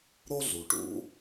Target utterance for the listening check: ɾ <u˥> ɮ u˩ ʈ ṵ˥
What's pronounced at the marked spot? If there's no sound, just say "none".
o˥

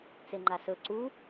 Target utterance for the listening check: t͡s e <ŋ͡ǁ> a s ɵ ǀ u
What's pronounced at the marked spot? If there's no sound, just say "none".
ŋ͡ǃ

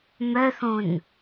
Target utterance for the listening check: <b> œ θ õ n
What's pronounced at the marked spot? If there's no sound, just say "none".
m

